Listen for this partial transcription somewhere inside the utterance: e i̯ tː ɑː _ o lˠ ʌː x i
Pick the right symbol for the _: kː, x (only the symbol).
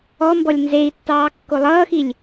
kː